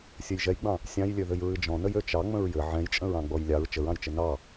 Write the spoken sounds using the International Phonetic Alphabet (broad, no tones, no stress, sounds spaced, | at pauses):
sʲ ɘ j ʒ ɛ j ɡ͡b ɑ̃ | sʲ ɑ̃ j lʲ ø ð ɘ j ɹ ɨ d͡ʒ ɔ̃ n ə j ø t͡ʃ ɑ ŋ͡m ə̃ ɹ j ɘ ʕ ɛ̃ j t͡ʃʼ ə̃ ɹ ɑ̃ ɡ͡b ɔ j lʲ ɑ ɹ t͡ʃ ə ɹ ɑ̃ j t͡ʃ ɘ n ɑ